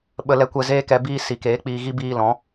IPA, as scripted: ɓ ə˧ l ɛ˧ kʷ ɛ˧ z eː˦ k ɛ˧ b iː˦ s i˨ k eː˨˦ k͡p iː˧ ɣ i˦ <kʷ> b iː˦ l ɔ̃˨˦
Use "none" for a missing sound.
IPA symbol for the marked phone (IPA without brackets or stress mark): none